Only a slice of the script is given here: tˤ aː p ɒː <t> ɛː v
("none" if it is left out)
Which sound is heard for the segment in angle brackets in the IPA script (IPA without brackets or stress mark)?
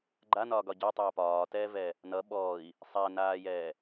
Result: t